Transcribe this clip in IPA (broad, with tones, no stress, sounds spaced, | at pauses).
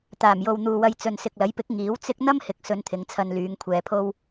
t̪ aː˨˩ m j o˨ w n̪ uː˨ w ɐ˧ j t͡s ɵ˨ n s ɪ˨ k̚ l ɐ˨˥ j p ɪ˨˥ k̚ ŋ iː˨˥ w t͡s ɪ˥ k̚ n̪ ɐ˥ m h ɪ˨ k̚ s ɵ˧ n t̪ʰ ɪ˨˧ ŋ t͡sʰ ɐ˧ n l yː˨˧ ŋ kʷʰ ɛː˧ pʰ o˥ w